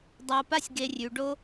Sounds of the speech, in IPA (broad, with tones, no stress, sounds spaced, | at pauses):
dˤ a˨ p a˥ sʲ ɡ e˨ rʲ ʉ˩ ɖ o˦